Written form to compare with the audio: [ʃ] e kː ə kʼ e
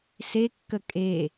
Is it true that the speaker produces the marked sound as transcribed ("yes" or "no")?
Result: no